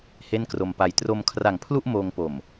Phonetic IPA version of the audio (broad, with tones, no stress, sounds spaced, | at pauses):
h e˥˩ n k r o˧ m p a˧ j t r o˧ m kʰ r a˨˩ ŋ pʰ l u˥˩ ʔ m oː˧ ŋ p o˨˩ m